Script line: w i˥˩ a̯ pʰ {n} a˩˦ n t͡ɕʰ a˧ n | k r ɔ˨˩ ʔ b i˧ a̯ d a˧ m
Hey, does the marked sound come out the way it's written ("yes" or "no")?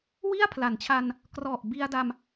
no